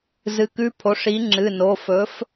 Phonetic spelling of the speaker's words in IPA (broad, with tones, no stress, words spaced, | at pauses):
zɨ˨˥kʉ˧˥˧ pʰo˨˥ʂ i˨˥ŋ͡ǁɨ˩˧˩no˩˧˩ fɵ˨˥f